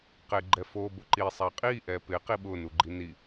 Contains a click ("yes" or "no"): yes